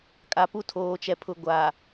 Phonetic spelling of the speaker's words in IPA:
kʼ a˨ p u˦ tʰ oː˨ t͡ʃ ɛ˨ pʰ ʊ˨ ɡʷ a˨

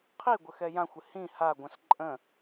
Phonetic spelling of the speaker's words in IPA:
qʰ i ɡʷ ə x ɛ j ã xʷ ɪ h ĩ h a ɡʷ ə̃ s ǃʼ ə̃

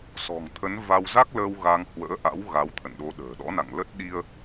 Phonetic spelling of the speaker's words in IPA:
s ɔ̤˨˩ ŋ t̪ʰ ə˨˦ n v a˧ w z a˦˥ k̚ l əː˧ w ɣ a˧ ŋ h w ə̰ː˧˥ ʔ a̰˧˥ w ɣ a˨˦ w t̪ʰ ə̰˧˨ n ɗ o˨˦ ɗ ə̤ː˨˩ ɗ ɔ̰˧˥ n a̰˧˨ ŋ l ə˦˥ t̚ ɗ i˧ ə̯

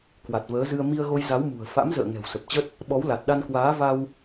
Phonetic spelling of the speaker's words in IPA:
k w a˨˩ t̚ v əː˨˦ z ɨ˧ ə̯ m i˧ ə̯ ɣ o˧ j z a˨˦ w m ṳ˨˩ ə̯ f a̰˧˥ m z ə̰ː˧˨ ŋ ɛ̤˨˩ w s ə˨˩ p̚ t͡ɕ ə˦˥ t̚ | ɓ ɔ˨˦ w l a˨˩ t̚ ɗ a˧ n k w aː˨˦ v a˧ w

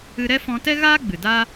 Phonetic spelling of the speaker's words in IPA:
ɨ˧ ɾ ɛ˦ f ɔ̃˧ t ɛ˦ ɣ aː˦ ɡ͡b ɨ˨ d a˦

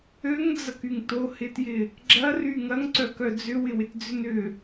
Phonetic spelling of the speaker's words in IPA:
ø ŋ d͡z ɐ k y ŋ t o h ɪ t j ɪ | ɡ͡ǁ ɐ r y ŋ ɐ ŋ ǀ œ k œ d͡z ʏ w ɪ w ɪ t d͡z ʏ n ʏ

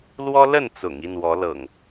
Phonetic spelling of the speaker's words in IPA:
l w ɔ˦ l ə˥˨ n t͡s ʊ̰˨˩ ŋ i˥˨ n w ɔ˨˦ l ɤ̰˨˩ ŋ

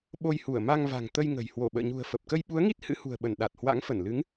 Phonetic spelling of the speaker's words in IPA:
ɓ o˧ j h u˧˩ ə̯ m a˧ ŋ v a̤˨˩ ŋ t̪ ə˧ j ŋ ə̤˨˩ j h w o˧˩ ɓ ə̰ː˧˨ ɲ ṳ˨˩ ə̯ f ə˨˩ p̚ k ə˧ j ɓ u˨˦ ə̯ ŋ i˦˥ t̚ h ɨ̰˧˥ h ṳ˨˩ ə̯ ɓ ə˧˩ n ɗ a˨˩ t̚ h w a̰˧˥ ŋ f ə˧˩ n l ɨ˨˦ ŋ

